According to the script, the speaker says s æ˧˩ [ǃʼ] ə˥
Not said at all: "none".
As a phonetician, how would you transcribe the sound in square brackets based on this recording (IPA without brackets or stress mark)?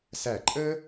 ǃʼ